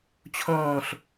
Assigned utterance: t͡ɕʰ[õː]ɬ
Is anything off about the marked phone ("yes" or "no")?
no